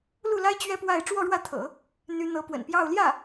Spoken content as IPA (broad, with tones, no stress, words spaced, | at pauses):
lu˥˩la˥ɪ̯ t͡ɕɥɛ˥pwa˥˧ɪ̯ ʈ͡ʂwɔ˥˧ɻwä˥˩t̪ʰɤ̰˨˩˦ | n̪y˧˥n̪ɤ˧˥pwə̰˨˩npjɑ˥˧ʊ̯ ljä˥˩